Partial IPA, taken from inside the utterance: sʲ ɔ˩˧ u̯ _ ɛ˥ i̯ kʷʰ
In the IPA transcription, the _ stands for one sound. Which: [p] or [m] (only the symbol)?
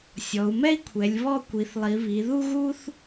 m